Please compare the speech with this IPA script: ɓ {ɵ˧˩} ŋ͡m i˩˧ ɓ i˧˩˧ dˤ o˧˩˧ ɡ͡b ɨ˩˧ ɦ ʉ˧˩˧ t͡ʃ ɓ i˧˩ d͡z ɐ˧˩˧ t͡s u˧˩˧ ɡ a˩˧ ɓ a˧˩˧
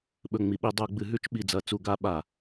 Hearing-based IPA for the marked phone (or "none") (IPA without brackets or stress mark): ɵ˧˩